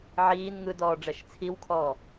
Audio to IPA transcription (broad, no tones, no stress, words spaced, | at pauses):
ʕiːn ŋɯdɔː ɖ͡ʐɛʃt͡sʰiwkʰɔː